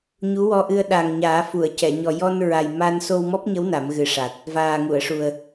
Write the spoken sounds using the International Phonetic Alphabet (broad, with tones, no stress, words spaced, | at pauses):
ɲu˧˥wɔ˧ʔɨ˧ə̯ ɗa˨˩ŋ ɲaː˨˩˦fu˨˩˨ə̯cɛ˨˩˨ ɲɔ˨˩jɔ˧nɹa˨˩j ma˧n so˧wmɔ˦˥p̚ɲə˧˥w na˨˩˦mɣɨ˨˩ʂa˨˩t̚ | vaː˨˩ŋu˨˩˨ə̯ʂu˨˩ə̯